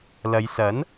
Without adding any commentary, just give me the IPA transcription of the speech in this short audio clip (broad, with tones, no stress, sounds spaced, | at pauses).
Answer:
l ɐ˨˧ j s ɐ˨˥ n